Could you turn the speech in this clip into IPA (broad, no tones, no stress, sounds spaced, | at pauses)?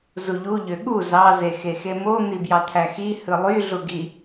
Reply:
z u ʎ u ʎ ø ɠ u z ɑ z e x e x e m o n̪ i b j ɑ t̪ʰ æ x i h ɯ lˠ y ɮ u ɡ i